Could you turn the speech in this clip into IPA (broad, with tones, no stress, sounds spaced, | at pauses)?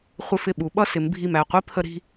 χʷ ɪ˧ f ɪ˧˩ ɓ u˩˧ ɓ ʌ˥˧ s ɪ˩˧ m bʱ i˧˩ m æ˧˩ qʷ i˥ pʰ ə˧ ɾ i̤˥˧